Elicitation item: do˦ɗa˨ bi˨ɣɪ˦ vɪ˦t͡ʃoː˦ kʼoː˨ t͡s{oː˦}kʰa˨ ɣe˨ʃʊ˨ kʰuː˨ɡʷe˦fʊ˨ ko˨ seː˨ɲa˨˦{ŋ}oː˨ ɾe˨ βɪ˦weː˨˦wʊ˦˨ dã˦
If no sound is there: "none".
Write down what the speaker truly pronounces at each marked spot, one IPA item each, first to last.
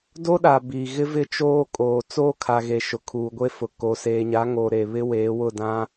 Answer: oː˦, ŋ

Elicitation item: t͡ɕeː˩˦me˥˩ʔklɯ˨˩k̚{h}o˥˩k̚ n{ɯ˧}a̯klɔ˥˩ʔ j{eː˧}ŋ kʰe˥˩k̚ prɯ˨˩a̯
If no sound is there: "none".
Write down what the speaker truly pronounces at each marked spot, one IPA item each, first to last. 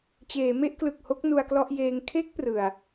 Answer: h, u˧, eː˧

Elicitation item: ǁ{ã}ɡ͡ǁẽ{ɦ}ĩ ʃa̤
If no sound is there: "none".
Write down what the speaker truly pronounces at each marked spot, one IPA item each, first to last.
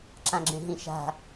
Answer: ã, ɦ

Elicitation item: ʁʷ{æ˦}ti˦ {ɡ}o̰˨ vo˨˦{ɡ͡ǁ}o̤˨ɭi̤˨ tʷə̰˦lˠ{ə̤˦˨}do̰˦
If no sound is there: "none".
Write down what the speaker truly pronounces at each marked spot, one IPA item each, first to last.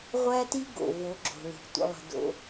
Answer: æ˦, ɡ, ɡ͡ǁ, ə̤˦

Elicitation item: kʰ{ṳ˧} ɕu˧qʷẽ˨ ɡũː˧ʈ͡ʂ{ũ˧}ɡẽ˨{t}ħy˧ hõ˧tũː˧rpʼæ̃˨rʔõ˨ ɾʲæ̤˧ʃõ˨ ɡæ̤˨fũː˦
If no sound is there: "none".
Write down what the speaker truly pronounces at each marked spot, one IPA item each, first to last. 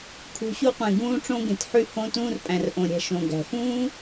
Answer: ṳ˨, õ˧, t

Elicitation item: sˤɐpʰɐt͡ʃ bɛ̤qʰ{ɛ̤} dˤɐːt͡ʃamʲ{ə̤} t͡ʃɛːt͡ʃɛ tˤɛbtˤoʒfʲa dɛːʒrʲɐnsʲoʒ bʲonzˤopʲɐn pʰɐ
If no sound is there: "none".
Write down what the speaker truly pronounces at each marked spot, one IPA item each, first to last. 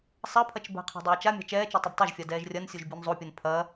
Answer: ɛ̤, a̤

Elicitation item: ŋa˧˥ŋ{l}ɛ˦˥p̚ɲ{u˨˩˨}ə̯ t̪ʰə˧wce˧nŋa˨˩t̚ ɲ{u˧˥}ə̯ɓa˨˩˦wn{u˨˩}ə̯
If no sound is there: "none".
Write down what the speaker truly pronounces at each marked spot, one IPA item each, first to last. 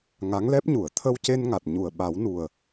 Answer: l, u˨˩˨, u˨˩, u˨˩

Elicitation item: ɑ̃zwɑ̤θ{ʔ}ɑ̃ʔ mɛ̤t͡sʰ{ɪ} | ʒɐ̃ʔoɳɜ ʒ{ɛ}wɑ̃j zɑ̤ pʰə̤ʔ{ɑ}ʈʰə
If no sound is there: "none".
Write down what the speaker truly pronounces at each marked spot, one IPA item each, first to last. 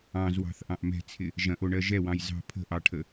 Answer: ʔ, ɪ, ɛ, ɑ

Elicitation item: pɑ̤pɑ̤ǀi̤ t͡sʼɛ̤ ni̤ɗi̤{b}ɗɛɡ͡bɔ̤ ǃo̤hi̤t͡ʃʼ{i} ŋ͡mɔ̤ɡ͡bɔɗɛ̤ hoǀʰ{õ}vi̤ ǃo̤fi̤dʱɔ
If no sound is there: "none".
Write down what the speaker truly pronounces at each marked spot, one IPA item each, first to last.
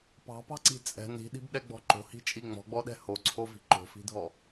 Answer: b, i, o

